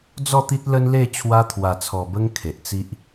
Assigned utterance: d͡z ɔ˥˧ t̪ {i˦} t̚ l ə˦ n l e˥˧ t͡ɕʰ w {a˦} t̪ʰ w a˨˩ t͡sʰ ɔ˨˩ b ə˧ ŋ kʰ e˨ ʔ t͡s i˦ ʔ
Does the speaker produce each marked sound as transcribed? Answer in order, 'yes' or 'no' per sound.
yes, no

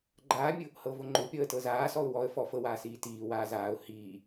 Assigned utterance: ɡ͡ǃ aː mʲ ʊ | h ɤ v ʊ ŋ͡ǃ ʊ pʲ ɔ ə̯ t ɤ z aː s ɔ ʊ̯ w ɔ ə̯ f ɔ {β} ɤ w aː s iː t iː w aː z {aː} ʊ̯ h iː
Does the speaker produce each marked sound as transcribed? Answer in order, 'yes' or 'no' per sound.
no, yes

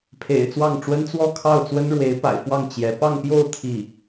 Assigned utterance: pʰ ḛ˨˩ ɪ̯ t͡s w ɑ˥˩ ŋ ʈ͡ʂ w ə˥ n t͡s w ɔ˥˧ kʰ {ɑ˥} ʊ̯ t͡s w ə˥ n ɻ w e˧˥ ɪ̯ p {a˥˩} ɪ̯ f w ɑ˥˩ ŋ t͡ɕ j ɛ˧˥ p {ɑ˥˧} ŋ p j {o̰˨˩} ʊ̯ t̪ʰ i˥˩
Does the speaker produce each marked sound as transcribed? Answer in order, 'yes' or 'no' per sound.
no, no, yes, no

